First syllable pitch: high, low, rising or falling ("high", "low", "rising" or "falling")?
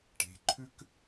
rising